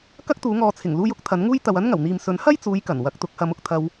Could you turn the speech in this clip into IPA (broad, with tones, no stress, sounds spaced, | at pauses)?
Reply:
k ɐ˥ k̚ t̪ uː˨˧ ŋ ɔː˨ t͡sʰ ɪ˨˩ ŋ l uː˧ j ʊ˨˥ k̚ t̪ʰ ɐ˨˥ n ŋ uː˥ j t̪ ɐ˨ w ɐ˥ n ŋ ɐ˨˩ w n̪ iː˨ m s ɵ˨˥ n h ɐ˥ j t͡s uː˨˧ j k ɐ˨˩ n w ɐ˨˥ k̚ t̪ ʊ˨˥ k̚ h ɐ˨˧ m ʊ˨˥ k̚ t̪ʰ ɐ˧ w